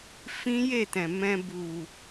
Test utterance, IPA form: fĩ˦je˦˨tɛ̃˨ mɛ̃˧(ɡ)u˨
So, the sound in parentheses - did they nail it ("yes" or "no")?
no